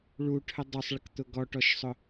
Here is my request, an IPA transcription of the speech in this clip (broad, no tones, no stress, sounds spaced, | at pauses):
ɭ u ʈʰ ə dˤ u sˤ ɭ ə k t̪ ʊ ɡ ɔ ʈ ɔ ʃ sˤ ʊ